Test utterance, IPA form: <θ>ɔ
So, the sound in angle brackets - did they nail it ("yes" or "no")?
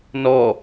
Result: no